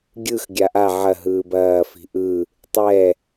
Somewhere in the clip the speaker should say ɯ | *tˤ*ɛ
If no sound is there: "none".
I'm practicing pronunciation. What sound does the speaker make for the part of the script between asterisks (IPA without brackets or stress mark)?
tˤ